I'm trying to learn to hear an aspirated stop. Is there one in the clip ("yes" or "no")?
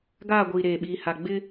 no